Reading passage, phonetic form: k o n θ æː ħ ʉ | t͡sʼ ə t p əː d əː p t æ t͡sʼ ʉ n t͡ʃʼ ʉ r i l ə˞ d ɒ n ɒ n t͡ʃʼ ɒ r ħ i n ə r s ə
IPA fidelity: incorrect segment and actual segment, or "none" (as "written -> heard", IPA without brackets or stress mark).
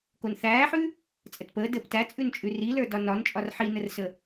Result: none